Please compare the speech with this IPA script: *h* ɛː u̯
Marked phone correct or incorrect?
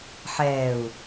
incorrect